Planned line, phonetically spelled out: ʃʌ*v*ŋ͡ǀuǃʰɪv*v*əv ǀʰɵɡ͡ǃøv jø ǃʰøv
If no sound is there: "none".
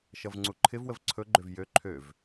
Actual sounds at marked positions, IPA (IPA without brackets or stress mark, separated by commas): v, w